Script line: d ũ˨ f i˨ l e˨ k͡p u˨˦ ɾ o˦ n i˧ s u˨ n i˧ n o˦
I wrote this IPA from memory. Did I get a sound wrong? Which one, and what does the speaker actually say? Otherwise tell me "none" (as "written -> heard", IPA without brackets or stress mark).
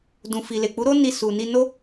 none